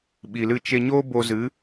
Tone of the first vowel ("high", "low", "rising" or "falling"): low